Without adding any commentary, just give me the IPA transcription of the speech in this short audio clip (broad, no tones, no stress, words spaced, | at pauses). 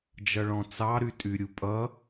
d͡ʒʌɭɔ̃t͡sɑ ɾytʼyɾʲupʼʌ